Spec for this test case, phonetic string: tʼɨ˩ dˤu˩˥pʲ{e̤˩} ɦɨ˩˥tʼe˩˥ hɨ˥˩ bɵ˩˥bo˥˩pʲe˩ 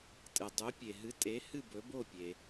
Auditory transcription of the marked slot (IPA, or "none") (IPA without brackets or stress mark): e˩